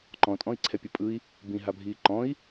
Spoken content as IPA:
ǃ ɔ̃ tʼ ɔ̃ i̯ ǀʰ ɛ pʲ ɘ pʼ ɯ i̯ | b ĩ ɦ a bʱ iː ǃ ɔ̃ i̯

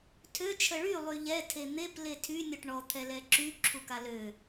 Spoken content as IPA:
tʰ ø t͡ʃʰ ə ɭ y lˠ y ʎ ɛ tʰ e n̪ e p l e tʰ y nʲ ɔ ʈ ɳ ɔ t̪ʰ ɛ l ɛ ǁ y ǁʰ u k a l ø

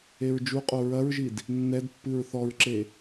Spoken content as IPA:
e ɹ d͡ʒ u qʼ o ɹ ɐ ɹ ʒ i d | nː ɛ d pː ɨ ɹ θ ɔ ɹ ǁ e

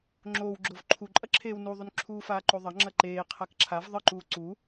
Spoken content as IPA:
ŋ͡ǁ oː w ɡ͡ǁ o v ǃʰ u ǃʼ ɐ ǁʰ eː w n u ðˤ u n ǁʰ uː f aː ǃ o ðˤ ɐ ŋ͡ǁ ɐ ǃ eː qʰ a k ǁʰ a v ðˤ ɨ ǃ uː ǀ u

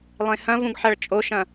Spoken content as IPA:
lˠ ẽ h ɐ̃ v ũ ɡ ħ ɐ ɭ t͡ʃʼ o ʃ ɐ̃

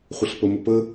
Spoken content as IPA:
χʷ ə ɬ p ə m ə p ə

